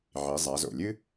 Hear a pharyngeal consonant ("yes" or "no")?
yes